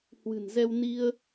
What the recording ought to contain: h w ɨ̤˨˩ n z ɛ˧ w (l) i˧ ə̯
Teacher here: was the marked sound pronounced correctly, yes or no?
no